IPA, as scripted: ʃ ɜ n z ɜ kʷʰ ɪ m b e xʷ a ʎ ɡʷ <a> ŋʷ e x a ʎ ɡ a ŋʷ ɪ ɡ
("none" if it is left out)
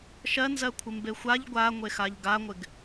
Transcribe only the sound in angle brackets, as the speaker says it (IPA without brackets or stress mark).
a